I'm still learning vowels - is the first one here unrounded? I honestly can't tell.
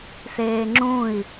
yes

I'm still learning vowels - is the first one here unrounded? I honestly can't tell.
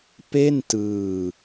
yes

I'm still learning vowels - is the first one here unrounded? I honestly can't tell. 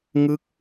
yes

